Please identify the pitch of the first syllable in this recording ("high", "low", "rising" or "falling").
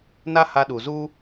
high